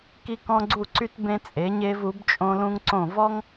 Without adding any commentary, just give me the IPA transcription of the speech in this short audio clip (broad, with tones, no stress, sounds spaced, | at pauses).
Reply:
k i˥ k ɔ̃˥ ɡ͡ǀ u˥˧ ǀ y˥ t b ẽ˧ t͡sʼ e˩˧ ɲ e˧ v u˩˧ b t͡ʃʼ õ˧ l ũ˧ ŋ ǀ õ˧˩ v ɔ˥ ŋ